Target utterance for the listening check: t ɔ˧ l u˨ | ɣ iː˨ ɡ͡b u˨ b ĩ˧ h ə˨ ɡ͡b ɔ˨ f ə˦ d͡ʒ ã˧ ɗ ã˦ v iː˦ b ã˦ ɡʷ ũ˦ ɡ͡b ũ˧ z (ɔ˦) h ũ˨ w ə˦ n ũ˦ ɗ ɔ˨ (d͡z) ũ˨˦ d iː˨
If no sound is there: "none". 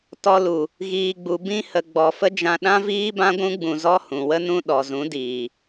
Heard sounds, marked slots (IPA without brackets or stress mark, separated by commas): ɔ˦, z